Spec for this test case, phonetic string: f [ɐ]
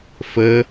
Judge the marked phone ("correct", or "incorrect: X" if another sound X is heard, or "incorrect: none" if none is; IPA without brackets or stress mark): incorrect: ə